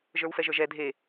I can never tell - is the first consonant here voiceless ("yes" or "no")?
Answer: no